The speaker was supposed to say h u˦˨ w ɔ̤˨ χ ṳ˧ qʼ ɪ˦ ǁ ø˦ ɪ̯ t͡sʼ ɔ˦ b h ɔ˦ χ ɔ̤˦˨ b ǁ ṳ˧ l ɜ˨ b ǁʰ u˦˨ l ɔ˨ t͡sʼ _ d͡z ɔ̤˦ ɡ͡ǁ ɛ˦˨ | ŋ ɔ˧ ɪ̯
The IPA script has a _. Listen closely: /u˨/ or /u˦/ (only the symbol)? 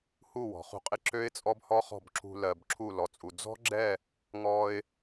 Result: u˨